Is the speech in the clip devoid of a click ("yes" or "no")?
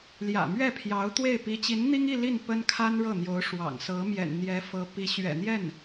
yes